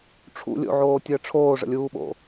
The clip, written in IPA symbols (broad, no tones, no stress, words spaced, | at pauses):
ʈ͡ʂʰṵ lʲo̰ʕoːtʲəː ʈ͡ʂʰoːʐə̰lʲuːɓo̰